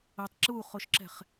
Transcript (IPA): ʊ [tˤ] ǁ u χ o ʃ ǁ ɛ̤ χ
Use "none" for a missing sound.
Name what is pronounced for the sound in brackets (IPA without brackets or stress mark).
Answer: tˤ